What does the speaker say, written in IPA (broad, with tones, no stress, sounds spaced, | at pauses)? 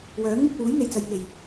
w œː˨˥ ŋ m ɪ˧ k̚ w uː˨˥ j n̪ e˨ j t͡s ɐ˧ j ŋ e˨˩ j